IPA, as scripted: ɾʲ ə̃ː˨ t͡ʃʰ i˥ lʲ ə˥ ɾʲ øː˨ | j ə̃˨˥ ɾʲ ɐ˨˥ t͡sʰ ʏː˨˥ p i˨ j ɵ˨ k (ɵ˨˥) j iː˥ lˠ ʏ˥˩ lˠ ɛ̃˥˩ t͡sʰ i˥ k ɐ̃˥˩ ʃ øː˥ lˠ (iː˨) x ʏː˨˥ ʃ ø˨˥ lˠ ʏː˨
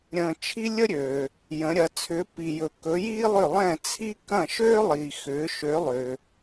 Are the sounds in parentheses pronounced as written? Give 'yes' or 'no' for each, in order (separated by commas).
yes, yes